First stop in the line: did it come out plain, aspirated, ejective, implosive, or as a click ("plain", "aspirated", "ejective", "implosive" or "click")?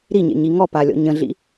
plain